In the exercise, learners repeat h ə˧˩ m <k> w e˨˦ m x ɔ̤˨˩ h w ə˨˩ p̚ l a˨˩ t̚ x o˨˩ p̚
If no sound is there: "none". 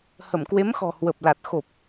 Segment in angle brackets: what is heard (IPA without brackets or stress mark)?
k